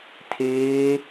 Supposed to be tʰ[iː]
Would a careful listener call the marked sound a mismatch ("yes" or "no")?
yes